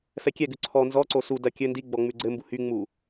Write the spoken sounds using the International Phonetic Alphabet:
f ɛ kʲ ɛ ɡ ʉ ǀʰ ɔ n z ɔ ǀ o s u d ɐ kʲ ɘ n d i ɡ͡b ɔ ŋ͡m ʉ ɡ͡ǀ ɘ m b u h y ŋ͡m u

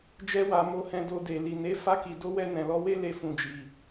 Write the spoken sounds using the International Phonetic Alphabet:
d͡ʒ ɛ˦ w a˧ m o˧ h ɛ̃˧ d o˧ d e˨ l i˨ n e˨˦ f a˧ k i˨ d o˨˦ w ɛ˧ n ɛ̃˨ l ɔ˧ w e˦ l e˧ f ũ˨ d͡ʒ i˨

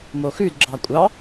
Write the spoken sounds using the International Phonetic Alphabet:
m o x ʉ d ɡ͡ǁ ɑ kʷʼ ɑ

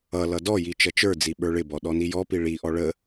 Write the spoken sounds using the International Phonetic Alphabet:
ʌ l ʌ d ɔ j i t͡ʃ ʌ t͡ʃ ə˞ d͡z i ɓ ə˞ ɭ ɪ b ɔ ɗ ɔ n i j ɔ p i ɭ i ʔ ɔ ɭ ə

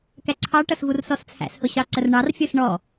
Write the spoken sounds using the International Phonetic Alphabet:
k æ ǀʰ ɑ ʈ ʌ s v u r s ɔ s t͡sʰ æ̰ s h ʊ ɕ ɑ ǀ ə r ɳ ɑ r fʲ ə˞ s ɳ ɔ

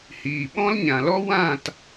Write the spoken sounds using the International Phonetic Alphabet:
h iː˨ ɓ ɔ̃˦ l ɲ ã˨ l ɔ˦ w ã˦˨ t

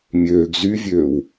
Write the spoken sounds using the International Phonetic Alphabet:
mʲ øː ɡ z y vʲ øː w

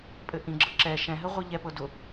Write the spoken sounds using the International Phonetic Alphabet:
pʼ ɘ ʔ ĩ ɡ͡ǁ ɤ ǁ ɛ ʃ ɛ̃ ɦ ɘ ʁʷ i ʎ ɛ p ɤ d ʊ

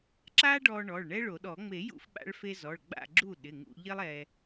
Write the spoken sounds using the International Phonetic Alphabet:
ǁ a˥ ɖ ɔ˧ ɳ ɔ˩˧˩ ɭ ɳ ɛ˥ ɭ o˨˩˦ ɗ ɔ˨˩˦ ŋ͡m e˨˩˦ j ṵ˧ f ɓ a̰˧ ɭ f e˧ z ɔ˩˧˩ ɭ ɡ͡b a̰˥˨ ɡ͡ǁ u˥˨ ɗ ɪ˩˧˩ ŋ ṵ˧ ʎ ɪ˥ lˠ ɛ˧

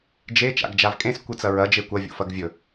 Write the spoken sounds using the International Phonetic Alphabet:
d͡ʒ e t͡ʃ a̰ ɡ d͡ʒ a v kʼ ẽ s kʷ ɨ t͡s ɐ ɹ ɐ d͡ʒ e kʷ ɐ vʲ o̰ f ɐ ɡ vʲ ɵ

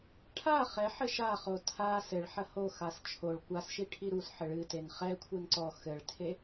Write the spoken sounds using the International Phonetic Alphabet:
ʈʰ a χ ɛ ħ ɘ ʃ a χ o tʰ a s ɘ ɭ ħ ɐ h o x a s t͡ʃʰ o ɭ kʷ a s ʃ i ʈʰ i ɾ u s ħ ɘ ɭ ɨ t e n χ ɛ kʷʰ e n ǀ ɔ x ɘ ɭ tʰ e

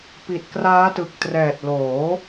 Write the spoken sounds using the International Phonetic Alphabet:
p i˨˩ t̚ k r aː˦˥ t ɯ˨˩ k̚ t r ɛː˨˩ t̚ l oː˩˦

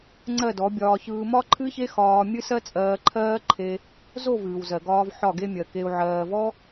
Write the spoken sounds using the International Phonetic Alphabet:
ŋ͡ǀ ɜ˦˨ d ɔ˨˦ bʲ ɒː˧ ç ɯː˧ m ɒ˦ ǃʰ ɨ˦ ç e˦ x ɒː˧ mʲ ɨ˦ s ɜ˦ t͡sʼ ɜː˧ ǃʰ ɜː˦ ǃʰ e˧ | z o˦˨ v ɨː˨ w z ɜ˨ ɡ ɒː˧ v ħ ɒ˦˨ ɡ e˦ mʲ ɜ˨ k e˧ u̯ ʕ ɜː˨ v ɔ˦

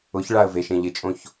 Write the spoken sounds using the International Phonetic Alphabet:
ʊ ç ɭ a ə̯ v e ʃ ẽ ʎ ɪ t͡ʃʼ õ ç

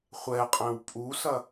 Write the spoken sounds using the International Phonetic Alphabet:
χʷ ɛ qʼ ɛ̃ w pʼ u s ɐ

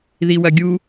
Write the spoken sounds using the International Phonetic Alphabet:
ð i w ɐ ɡʲ u

